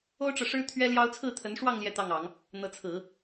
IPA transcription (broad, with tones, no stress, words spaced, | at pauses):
o˥ʊ̯ʈ͡ʂɤ˨ʂɻ̩˥ t̪ʰɥɛ˥ljɑ˥ʊ̯ t͡sʰɹ̩˥˩t̪ʰə˧˥nʂwɑ˥˧ŋ ljɛ˥˧t̪ɑ˥˩ŋɑ˨˩˦ŋ | n̪ɤ˧˥t͡sʰɹ̩˨˩˦